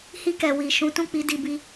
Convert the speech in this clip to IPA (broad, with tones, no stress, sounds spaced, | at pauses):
h i˧ k ɛ˨ w i˨ ʃ ũ˨˦ t ũ˦˨ k͡p i˨˦ d i˧ b i˦